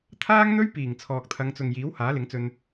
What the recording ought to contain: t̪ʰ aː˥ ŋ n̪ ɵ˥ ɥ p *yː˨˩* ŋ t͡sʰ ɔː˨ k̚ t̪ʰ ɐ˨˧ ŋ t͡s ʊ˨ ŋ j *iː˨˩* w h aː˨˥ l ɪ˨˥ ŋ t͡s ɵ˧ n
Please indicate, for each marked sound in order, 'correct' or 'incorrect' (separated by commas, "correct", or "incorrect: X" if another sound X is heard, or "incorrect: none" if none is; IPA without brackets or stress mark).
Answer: incorrect: iː˨˩, incorrect: iː˨˥